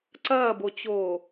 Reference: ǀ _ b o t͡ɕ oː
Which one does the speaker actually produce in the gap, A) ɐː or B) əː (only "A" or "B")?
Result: A